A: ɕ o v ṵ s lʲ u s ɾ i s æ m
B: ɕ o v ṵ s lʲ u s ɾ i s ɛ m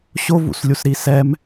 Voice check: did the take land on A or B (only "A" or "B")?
B